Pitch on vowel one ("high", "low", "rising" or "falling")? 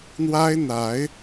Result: high